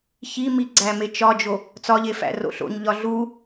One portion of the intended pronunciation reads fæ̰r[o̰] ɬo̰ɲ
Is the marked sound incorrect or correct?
correct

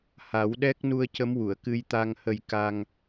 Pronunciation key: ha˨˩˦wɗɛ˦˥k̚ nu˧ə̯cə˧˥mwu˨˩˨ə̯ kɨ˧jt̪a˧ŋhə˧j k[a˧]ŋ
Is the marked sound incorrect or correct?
correct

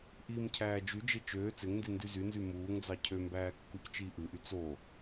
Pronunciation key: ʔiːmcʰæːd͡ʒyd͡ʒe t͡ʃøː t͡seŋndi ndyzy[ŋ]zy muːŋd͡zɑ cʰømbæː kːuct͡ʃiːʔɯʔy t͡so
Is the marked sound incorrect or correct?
incorrect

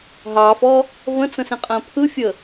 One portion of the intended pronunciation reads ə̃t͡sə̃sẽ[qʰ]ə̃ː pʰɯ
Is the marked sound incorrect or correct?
incorrect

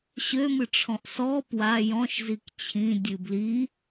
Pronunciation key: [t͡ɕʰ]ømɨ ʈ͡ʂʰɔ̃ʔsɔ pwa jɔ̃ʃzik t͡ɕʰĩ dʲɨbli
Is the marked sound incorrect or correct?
incorrect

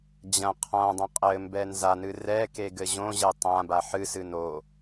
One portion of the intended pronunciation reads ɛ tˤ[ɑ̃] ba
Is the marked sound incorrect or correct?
incorrect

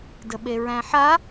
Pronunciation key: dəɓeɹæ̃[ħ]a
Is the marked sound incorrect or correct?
correct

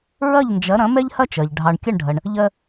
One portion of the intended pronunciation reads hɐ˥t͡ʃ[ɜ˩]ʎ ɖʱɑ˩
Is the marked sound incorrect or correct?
correct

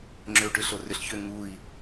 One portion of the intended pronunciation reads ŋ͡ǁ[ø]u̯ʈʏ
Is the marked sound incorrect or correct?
correct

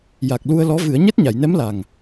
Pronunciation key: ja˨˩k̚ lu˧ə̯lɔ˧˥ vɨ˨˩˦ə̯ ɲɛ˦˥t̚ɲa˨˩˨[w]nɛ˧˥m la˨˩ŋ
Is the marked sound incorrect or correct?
incorrect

